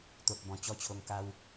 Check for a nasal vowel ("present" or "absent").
present